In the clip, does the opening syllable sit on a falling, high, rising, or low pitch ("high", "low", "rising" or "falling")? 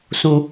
low